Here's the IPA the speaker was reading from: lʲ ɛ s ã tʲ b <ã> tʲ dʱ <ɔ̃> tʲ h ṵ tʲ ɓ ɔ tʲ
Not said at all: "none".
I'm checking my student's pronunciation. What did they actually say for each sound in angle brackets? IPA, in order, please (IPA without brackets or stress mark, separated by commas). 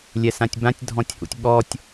ã, ɔ̃